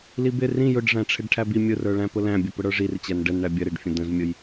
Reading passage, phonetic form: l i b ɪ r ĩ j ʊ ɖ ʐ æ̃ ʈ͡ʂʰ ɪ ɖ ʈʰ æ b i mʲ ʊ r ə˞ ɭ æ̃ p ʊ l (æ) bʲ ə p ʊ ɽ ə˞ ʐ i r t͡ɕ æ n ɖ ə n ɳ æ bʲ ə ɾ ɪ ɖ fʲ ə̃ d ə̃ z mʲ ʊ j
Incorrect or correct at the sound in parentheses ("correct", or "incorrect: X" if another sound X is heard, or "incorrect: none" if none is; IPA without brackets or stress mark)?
incorrect: æ̃